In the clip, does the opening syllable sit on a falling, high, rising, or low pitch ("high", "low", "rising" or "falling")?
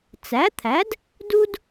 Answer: rising